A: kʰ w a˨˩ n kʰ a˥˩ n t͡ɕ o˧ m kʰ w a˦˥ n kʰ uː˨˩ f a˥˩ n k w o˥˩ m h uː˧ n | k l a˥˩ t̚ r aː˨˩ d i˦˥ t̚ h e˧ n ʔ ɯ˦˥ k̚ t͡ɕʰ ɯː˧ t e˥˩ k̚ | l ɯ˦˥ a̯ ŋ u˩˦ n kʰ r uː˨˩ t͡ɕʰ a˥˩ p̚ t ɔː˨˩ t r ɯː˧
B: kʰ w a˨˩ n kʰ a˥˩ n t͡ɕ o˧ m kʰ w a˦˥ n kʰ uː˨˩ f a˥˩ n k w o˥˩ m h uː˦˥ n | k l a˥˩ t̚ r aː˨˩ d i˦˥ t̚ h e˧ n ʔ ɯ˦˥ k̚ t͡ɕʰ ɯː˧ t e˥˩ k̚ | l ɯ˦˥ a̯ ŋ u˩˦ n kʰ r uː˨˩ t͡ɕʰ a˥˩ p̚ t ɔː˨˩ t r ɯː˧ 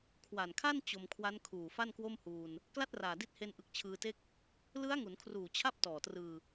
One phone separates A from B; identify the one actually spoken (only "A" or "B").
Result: A